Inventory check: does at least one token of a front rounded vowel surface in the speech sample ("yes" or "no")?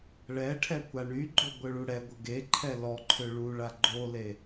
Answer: yes